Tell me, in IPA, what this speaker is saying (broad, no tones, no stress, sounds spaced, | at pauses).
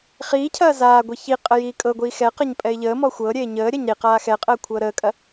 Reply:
χ iː cʰ ɐː z aː ɡʷ i ç i qʼ ə j iː kʼ ɤ ɡʷ iː x ɛ q ɐ ɲ pʼ ɛ ɪ̯ ʎ əː m ɔ xʷ ɤː ɾʲ eː ɲ əː ɾʲ ɐ ɲ ɾ i q aː x ɛ qʼ əː kʷʰ ɤː ɾ əː kʼ ɐ